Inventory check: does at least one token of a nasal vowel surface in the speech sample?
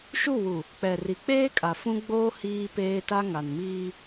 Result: yes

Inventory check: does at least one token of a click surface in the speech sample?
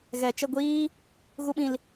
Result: no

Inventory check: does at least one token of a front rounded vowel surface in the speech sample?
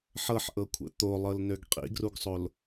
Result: yes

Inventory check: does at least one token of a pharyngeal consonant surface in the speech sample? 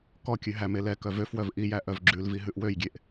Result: no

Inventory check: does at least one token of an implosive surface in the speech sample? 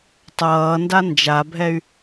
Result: no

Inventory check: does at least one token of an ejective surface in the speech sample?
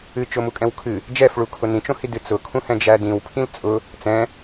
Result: yes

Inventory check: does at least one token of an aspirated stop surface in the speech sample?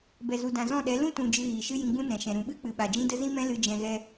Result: no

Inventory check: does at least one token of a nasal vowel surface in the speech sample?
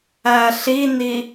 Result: no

